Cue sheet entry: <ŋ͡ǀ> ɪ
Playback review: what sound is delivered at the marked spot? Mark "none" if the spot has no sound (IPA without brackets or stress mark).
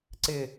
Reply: ǀ